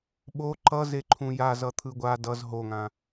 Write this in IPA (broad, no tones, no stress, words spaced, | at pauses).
ɓo ǃʌze ǃʰũjaz ʌt̪ʰɯɡʷa dʌz ɦoŋã